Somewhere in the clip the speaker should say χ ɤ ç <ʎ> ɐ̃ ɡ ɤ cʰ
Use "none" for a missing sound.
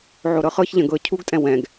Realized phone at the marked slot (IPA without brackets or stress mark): ʎ